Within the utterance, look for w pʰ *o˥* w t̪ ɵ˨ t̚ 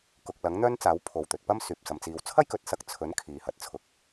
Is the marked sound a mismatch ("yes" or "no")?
yes